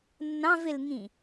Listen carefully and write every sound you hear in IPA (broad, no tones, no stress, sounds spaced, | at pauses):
nː ɑ̃ v ɪ l ŋ ĩ